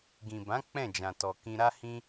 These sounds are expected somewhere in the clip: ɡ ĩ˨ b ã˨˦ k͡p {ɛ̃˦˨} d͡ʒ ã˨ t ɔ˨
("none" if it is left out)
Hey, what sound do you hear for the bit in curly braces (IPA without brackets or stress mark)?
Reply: ɛ̃˦˨